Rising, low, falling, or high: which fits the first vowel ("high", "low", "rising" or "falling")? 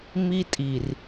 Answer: high